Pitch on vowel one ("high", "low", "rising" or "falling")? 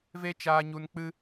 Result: high